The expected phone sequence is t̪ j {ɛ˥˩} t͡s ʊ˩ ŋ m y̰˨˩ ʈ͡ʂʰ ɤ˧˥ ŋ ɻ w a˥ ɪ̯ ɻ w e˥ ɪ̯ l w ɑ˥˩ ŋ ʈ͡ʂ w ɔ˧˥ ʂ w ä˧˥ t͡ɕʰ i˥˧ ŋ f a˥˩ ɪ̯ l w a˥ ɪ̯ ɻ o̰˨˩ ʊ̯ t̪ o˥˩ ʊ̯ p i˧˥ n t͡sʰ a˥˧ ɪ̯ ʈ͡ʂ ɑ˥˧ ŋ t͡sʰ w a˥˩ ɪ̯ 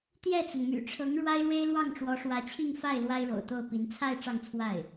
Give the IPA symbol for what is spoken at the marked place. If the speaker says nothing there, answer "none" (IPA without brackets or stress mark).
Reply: ɛ˥˩